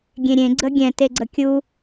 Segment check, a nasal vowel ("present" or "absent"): present